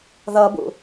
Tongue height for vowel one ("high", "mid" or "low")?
mid